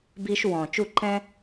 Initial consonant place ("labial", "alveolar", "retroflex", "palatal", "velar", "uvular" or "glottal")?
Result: labial